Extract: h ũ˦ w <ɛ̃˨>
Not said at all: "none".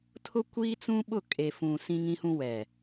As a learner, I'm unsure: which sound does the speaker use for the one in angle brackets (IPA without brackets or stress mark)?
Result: ɛ˨